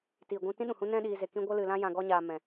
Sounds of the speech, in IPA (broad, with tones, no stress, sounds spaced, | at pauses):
t iː˨ ɡʷ ũ˧ t ĩ˦ ɗ ũ˨ h ũ˦ n ɛ̃˧ ɗ iː˨ z e˨ k ĩ˧ ɡʷ ə˧ l ɨ˨ l ã˧ j ã˨ ɡ ɔ˧ ɲ aː˨ m ɛ̃˧